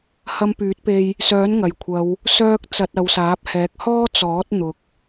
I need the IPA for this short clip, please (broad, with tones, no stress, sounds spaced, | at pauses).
h ɐ˧ m p yː˨˥ t̚ p e˧ j | s œː˨˥ n ŋ ɐ˨˩ j kʷʰ ɐ˨˧ w | s œː˧ k̚ t͡s ɐ˨ t̚ ɐ˨˧ w s aː˨˥ p̚ h ɛː˨˥ k̚ h ɔː˥ t͡s ɔː˨˥ t̚ n̪ ʊ˨ k̚